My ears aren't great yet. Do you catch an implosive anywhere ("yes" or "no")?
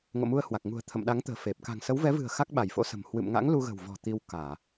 yes